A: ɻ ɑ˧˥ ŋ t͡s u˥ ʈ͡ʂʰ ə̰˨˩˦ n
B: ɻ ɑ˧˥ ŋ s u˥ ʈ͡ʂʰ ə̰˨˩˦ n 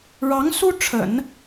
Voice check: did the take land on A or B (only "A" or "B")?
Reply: B